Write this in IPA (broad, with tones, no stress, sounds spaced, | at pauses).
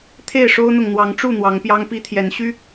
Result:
t̪ʰ e˥˨ ɪ̯ ʂ o˦ ʊ̯ n̪ ʊ˨ ŋ n̪ w ɑ˨˦ ŋ ʈ͡ʂ u˥˨ n̪ w ɑ˨˦ ŋ p j ɑ˦ ŋ p i˦ t̪ʰ j ɛ˨˦ n ɕ y˦